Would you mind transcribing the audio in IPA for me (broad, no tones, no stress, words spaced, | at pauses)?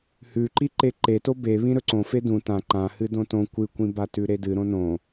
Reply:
hʉǃiǃe ǃeto be βĩɾɵǀõ fedũ tã ǃã hɨdõtõ kʷɨkʷĩbatʉ ɾedɨ ɾõnõ